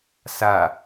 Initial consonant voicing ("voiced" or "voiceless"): voiceless